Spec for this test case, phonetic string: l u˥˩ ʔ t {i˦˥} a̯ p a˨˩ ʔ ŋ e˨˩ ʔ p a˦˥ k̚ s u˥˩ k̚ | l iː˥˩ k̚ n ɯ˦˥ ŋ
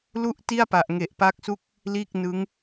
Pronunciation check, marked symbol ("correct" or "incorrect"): incorrect